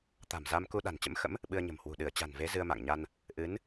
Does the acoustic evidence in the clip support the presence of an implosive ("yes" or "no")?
yes